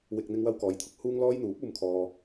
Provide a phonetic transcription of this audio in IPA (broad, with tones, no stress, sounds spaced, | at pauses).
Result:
w ɪ˨ k̚ n̪ ɪ˧ ŋ w ɐ˧ w k ɔː˨ j t̪ʰ ʊ˨ k̚ h uː˧ ŋ l ɔː˧ j n̪ uː˨˥ p̚ uː˧ m kʰ ɔː˧